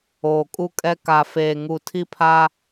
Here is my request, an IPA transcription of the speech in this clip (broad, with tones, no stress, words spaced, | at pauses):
oː˨kʼu˦kʼɛ˦ ka˨feː˨ŋu˨ tʰi˦pʰa˦